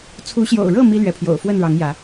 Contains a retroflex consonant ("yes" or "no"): yes